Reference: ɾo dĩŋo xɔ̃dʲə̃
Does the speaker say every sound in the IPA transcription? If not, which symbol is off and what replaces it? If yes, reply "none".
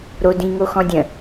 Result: none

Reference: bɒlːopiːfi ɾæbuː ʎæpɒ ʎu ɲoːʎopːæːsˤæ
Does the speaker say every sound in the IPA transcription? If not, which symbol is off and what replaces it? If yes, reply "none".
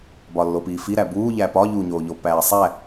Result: none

